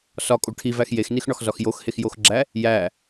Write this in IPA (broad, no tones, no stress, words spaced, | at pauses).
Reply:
sɒkʼo ʈʰivæx jexnixɳɒxzɒx joxhexjoxɡ͡ǁæ | jæ